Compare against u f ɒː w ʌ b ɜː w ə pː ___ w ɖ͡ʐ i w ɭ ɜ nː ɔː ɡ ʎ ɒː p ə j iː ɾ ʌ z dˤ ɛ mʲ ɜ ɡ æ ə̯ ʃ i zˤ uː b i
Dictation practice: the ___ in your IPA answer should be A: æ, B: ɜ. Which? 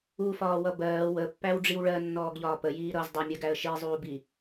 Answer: A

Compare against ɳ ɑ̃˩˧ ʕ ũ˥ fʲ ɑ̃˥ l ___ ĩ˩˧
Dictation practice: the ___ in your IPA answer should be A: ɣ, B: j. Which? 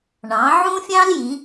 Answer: B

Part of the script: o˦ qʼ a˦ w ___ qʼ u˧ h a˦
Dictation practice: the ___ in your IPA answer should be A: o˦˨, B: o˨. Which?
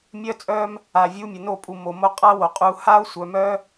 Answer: B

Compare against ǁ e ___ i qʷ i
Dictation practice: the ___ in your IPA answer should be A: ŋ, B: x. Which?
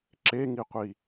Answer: A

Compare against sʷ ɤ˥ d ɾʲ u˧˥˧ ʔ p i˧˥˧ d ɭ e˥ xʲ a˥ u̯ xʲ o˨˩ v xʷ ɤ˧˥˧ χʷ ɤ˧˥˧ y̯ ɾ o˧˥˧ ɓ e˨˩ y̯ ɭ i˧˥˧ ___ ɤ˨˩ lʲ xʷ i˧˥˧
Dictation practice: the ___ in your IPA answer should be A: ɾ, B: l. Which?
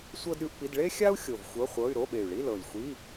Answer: B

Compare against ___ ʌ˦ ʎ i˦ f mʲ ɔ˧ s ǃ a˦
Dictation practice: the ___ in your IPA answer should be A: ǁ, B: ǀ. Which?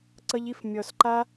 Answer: B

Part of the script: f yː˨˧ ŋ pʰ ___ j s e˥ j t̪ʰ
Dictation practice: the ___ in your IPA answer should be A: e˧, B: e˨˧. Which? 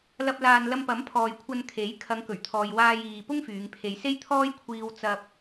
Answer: A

